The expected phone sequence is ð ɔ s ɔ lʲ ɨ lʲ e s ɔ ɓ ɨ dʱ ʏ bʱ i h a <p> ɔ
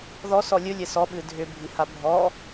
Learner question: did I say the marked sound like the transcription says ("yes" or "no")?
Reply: no